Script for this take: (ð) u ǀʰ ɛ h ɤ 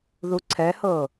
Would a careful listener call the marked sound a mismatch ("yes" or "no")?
no